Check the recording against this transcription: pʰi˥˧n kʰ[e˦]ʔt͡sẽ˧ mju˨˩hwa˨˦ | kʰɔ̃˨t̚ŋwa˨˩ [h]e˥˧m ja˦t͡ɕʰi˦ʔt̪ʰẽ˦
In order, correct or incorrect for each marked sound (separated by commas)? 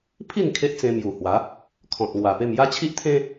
correct, incorrect